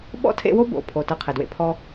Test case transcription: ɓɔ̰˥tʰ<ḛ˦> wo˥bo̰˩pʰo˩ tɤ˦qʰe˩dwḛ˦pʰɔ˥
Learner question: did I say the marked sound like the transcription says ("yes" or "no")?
yes